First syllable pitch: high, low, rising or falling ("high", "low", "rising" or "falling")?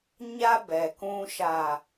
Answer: high